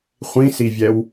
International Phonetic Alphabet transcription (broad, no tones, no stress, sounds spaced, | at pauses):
χʷ ĩ s i vʲ ɛ w